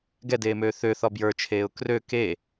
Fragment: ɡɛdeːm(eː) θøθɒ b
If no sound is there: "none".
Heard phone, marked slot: øː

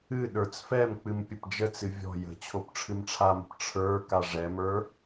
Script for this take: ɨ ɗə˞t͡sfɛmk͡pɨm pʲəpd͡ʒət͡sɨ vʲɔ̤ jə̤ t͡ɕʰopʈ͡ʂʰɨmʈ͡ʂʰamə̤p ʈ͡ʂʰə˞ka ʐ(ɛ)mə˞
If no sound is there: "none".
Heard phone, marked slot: ɛ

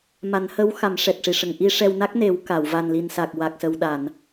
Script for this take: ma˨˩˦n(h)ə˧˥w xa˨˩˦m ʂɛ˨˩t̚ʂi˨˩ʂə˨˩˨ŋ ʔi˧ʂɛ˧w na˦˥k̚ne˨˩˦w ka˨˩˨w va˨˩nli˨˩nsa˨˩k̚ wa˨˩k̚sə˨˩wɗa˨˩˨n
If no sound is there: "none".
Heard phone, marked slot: h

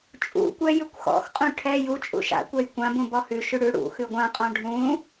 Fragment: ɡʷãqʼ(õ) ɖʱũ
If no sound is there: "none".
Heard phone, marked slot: ɔ̃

